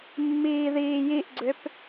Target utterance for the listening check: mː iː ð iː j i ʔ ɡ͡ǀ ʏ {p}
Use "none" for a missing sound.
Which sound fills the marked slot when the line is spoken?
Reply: p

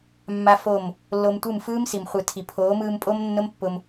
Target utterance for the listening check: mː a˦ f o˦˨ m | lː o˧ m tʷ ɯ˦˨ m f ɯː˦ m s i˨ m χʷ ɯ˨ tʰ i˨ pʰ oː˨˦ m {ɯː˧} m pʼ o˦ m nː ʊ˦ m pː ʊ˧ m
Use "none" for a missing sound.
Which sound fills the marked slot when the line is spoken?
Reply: ɯː˧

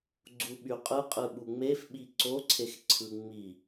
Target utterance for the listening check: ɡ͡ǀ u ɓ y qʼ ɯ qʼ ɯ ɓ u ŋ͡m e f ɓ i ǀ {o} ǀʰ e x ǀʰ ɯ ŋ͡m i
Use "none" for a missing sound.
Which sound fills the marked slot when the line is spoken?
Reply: o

